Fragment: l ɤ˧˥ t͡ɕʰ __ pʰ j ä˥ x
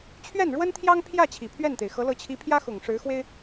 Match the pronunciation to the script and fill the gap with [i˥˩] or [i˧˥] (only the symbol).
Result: i˧˥